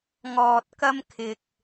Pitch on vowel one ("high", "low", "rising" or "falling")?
low